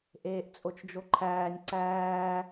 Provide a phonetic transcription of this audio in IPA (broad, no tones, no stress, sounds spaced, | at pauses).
ʔ eː ʔ t͡sʼ o t͡ʃ d͡ʒ o ǃʰ æː nʲ ǀ æː